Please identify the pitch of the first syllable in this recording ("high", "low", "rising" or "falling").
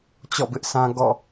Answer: falling